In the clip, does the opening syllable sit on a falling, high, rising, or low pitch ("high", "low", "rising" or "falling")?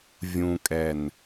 low